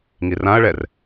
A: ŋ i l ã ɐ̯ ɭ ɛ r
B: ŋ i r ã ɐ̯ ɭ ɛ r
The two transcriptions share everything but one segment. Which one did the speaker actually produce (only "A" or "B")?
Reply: B